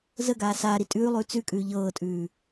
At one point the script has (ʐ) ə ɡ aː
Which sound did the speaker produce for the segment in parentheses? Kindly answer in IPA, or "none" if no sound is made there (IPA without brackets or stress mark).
z